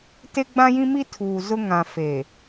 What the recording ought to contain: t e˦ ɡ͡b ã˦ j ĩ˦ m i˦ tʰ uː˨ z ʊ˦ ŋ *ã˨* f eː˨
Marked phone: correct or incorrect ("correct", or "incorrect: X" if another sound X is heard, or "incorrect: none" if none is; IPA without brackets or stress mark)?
correct